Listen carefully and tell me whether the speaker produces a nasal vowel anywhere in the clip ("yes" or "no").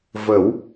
no